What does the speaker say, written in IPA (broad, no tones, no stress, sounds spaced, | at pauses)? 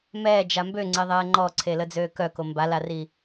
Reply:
m ɛː d͡ʒ a m b ø ŋ͡ǀ e ðˤ ɛː ŋ͡ǃ ɔ ǀʰ e l ə d͡z øː k œ k o m b a l a r i